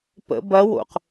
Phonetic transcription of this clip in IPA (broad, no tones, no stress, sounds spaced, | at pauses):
p ə̰ b ɐ w o̰ q